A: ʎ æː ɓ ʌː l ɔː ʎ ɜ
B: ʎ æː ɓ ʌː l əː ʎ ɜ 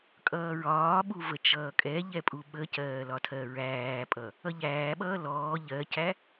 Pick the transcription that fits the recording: A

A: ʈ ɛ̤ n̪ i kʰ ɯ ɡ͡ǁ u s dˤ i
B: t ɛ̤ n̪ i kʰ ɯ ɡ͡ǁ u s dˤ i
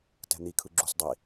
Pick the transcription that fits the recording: B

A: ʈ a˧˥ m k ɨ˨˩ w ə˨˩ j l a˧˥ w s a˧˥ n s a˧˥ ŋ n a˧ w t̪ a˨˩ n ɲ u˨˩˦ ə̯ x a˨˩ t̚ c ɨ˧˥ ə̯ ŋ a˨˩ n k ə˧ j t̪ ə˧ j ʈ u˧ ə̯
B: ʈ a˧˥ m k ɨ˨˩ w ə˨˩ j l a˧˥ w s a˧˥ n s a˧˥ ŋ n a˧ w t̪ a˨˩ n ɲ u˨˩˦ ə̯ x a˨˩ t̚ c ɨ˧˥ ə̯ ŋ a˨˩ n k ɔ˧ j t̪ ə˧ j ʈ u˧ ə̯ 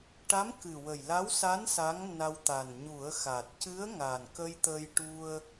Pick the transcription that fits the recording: A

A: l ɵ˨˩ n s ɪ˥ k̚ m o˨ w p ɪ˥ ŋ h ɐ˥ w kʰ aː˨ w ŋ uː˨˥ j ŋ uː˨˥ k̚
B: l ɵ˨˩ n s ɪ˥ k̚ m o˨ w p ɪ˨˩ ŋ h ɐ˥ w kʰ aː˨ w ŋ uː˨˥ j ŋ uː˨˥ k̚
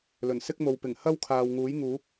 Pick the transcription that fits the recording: B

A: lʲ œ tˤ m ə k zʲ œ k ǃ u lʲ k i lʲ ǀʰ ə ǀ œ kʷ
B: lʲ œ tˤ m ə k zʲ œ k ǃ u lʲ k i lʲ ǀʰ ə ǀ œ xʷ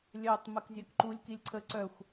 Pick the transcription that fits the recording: B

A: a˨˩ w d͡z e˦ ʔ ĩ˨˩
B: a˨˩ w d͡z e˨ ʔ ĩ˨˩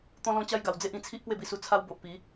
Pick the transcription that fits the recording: A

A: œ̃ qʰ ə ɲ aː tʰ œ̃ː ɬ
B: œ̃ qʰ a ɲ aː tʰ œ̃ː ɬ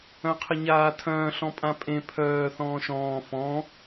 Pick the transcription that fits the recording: A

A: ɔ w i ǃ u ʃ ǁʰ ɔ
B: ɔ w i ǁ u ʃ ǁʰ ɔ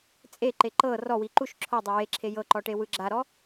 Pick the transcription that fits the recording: A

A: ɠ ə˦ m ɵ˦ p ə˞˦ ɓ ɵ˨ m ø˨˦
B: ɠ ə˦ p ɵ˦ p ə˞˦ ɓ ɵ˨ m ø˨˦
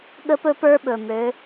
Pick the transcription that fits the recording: B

